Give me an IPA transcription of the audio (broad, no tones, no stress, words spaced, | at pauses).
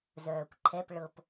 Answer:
zœːkʷǃʰɛp ɭɤp